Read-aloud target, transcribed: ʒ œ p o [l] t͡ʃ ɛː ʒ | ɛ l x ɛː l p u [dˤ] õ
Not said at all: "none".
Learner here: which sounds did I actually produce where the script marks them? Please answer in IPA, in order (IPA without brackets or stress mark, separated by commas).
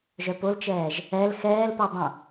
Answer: l, dˤ